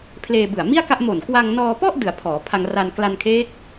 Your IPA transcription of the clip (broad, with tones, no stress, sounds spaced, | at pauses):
pʰ l eː˧ b ɯ˨˩ a̯ m i˥˩ a̯ k a˥˩ ʔ m o˨˩ n k w a˧ ŋ n ɔː˧ p ɔ˥˩ ʔ d ɯ˩˦ a̯ pʰ ɔː˩˦ pʰ a˧ ŋ r a˧ n k l a˧ n kʰ eː˦˥ k̚